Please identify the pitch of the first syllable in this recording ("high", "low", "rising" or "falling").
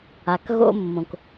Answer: low